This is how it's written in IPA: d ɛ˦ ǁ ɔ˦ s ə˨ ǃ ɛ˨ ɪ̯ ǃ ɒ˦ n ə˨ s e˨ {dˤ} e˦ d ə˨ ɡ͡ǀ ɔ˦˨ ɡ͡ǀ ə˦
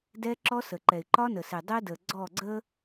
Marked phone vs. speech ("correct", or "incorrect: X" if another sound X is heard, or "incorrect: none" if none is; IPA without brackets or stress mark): correct